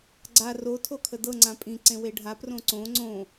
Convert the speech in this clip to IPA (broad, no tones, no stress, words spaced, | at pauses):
ɡ͡ǀa ro tʰokʰədɤ ŋ͡ǀãpʼĩ ǀẽweɖʱa prõǀõ ŋ͡ǀõ